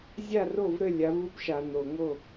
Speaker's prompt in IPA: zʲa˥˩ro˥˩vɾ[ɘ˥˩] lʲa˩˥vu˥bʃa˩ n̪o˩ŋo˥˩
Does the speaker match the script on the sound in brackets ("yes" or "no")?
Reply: yes